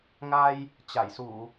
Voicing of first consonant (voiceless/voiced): voiced